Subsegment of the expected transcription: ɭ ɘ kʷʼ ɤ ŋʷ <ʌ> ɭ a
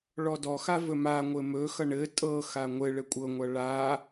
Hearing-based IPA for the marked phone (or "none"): ʌ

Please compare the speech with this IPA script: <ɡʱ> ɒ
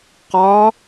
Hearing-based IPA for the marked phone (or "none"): q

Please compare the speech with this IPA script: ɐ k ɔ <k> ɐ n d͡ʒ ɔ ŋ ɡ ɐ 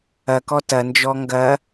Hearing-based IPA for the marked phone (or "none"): t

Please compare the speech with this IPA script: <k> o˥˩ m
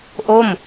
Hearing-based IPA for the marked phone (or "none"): ʔ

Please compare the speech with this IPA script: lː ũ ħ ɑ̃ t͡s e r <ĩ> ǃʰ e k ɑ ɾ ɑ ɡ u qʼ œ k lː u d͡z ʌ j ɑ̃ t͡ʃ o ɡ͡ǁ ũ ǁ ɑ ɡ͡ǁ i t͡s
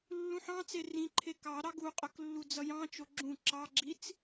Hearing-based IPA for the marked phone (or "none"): ĩ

